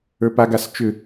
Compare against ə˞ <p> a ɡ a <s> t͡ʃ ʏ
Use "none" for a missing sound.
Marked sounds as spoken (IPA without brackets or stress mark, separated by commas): p, s